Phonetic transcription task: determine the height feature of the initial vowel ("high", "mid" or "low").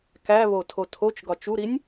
low